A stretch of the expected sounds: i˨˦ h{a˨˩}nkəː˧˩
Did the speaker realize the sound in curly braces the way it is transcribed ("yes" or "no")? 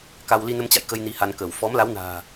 no